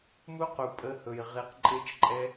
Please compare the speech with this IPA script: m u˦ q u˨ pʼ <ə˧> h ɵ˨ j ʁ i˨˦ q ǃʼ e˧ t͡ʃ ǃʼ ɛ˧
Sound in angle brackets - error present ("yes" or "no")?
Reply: no